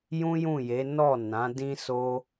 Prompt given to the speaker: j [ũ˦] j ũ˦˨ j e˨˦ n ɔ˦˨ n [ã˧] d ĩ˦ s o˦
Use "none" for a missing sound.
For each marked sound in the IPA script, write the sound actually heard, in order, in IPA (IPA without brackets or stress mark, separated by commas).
ũ˦, ã˨˦